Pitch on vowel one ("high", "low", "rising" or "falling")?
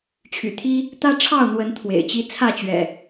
low